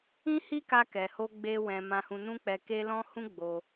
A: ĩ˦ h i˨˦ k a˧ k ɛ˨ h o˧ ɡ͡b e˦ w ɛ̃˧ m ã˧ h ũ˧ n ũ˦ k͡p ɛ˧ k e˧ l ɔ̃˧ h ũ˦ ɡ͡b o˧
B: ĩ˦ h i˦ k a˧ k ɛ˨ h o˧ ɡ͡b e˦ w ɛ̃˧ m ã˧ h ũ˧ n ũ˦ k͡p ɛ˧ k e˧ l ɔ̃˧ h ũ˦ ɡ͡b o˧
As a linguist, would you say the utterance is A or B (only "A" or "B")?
B